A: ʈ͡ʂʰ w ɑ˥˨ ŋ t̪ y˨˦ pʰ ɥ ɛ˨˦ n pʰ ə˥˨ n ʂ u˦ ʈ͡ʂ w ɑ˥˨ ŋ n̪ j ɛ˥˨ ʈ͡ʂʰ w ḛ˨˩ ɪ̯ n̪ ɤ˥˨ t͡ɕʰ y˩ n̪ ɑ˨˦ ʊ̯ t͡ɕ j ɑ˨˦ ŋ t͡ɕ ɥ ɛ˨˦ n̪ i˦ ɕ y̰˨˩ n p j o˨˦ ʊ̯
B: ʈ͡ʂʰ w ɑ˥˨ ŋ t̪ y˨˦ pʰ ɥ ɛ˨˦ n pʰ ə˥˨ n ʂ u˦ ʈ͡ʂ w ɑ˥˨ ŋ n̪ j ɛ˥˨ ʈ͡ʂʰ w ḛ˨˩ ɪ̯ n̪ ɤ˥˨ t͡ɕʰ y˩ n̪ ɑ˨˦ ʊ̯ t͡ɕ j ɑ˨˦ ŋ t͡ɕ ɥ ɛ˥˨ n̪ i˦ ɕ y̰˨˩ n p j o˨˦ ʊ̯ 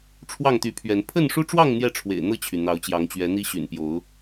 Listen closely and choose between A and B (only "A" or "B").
A